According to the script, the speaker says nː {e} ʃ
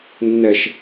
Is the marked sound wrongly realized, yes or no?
yes